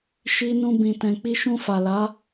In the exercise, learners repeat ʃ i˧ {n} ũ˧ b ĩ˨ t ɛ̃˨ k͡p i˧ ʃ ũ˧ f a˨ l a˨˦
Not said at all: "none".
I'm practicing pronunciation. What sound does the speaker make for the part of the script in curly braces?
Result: n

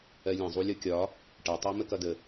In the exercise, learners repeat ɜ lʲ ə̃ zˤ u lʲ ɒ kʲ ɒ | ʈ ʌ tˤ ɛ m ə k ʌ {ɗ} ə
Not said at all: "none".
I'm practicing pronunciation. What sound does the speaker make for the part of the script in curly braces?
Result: d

